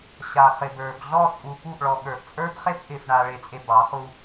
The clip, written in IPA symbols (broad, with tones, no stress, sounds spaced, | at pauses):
ɕ a˨ χ ɪ˨ b ə˞˨ b ɮ ɔ˦˨ t͡sʼ u˨ p u˦˨ ʔ ɭ ɔ˨ ɠ ə˞˨ ʔ t͡sʼ ə˞˦ b χ e˦ p ʔ ɪ˨ f ɳ a˨ ɭ e˨ t͡sʼ e˨ b ɑ˨˦ χ u˦